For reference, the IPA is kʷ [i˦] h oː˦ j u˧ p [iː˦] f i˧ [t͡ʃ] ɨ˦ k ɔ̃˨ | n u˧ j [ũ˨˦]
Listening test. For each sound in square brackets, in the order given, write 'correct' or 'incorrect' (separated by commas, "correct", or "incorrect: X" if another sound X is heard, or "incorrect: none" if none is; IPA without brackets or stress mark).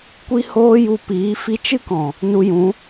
correct, incorrect: iː˨˦, correct, correct